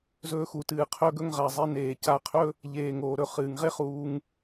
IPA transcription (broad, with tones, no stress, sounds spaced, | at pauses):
z ɵː˧ x u˨ t ɨː˨ qʰ ɵ˧ ɡ ɵ˧ ŋ ʁ a˨ zˤ e˧ n eː˨ c a˧ qʰ ɵ˦ | ʎ eː˨ ŋ oː˨ ɾ ɵ˧ χ ɨː˨ ŋ ʁ e˦ χ uː˧ ŋ